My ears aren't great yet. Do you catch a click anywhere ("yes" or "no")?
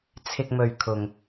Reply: no